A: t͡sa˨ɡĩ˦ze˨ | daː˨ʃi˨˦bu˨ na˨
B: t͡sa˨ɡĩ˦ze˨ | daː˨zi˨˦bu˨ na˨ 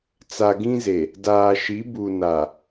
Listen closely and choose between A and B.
A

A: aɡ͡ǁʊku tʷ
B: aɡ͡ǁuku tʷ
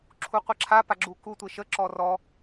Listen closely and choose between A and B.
B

